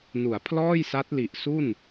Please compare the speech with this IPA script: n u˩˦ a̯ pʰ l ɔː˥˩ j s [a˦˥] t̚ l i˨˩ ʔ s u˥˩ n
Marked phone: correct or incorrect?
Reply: correct